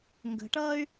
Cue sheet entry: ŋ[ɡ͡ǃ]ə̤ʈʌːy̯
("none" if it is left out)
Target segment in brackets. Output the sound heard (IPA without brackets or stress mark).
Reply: ɡ